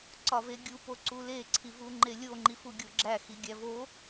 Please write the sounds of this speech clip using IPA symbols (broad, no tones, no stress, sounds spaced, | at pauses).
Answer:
ǀ ɒ v e ɡʲ u p o ǀ u l e ǀʰ i v u ŋ͡ǃ e lʲ o ŋ͡ǃ i f u ɡʲ o ɡ͡ǁ æ x i ɡʲ æ v o